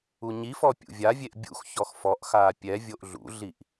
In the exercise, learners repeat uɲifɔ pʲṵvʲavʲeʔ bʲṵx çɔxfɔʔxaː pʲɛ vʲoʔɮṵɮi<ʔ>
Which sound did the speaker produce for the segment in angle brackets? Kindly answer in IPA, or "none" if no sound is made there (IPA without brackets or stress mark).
ʔ